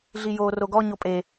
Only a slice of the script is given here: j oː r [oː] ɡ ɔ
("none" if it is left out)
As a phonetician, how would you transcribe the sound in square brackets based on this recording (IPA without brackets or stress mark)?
o